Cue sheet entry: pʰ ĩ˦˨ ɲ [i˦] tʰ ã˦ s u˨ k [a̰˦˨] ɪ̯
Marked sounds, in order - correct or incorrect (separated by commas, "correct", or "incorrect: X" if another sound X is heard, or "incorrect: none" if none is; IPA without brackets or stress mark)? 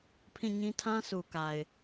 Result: incorrect: ĩ˦, incorrect: a˨